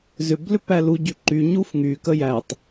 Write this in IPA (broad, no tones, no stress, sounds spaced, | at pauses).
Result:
z ʏ b l ʏ p æ l u ɟ y ǃ y ɲ u f ŋ y k ə j æ tˤ